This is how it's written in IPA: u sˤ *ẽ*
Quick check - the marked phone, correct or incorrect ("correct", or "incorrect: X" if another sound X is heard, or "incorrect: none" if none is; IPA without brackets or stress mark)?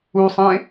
correct